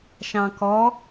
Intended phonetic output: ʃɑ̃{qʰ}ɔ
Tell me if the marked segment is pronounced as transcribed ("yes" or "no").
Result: no